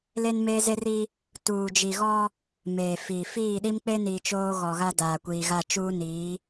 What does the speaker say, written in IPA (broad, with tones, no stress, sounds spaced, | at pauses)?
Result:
l e˦ n m eː˦ z e˦ r i˦ | t uː˨ d͡ʒ i˨ ɣ ɔ˦ | m eː˨ f iː˨ f iː˦˨ ɗ i˦ m k͡p e˦ n i˨ t͡ʃ oː˦ ɣ ɔ˨ ɣ a˦ d aː˨ kʷ iː˨ ɣ a˦˨ t͡ʃ uː˦ n iː˨˦